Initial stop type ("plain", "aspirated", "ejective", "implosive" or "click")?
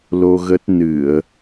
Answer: plain